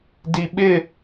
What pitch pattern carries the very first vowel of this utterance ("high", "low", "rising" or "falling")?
low